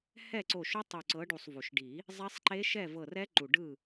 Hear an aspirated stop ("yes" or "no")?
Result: no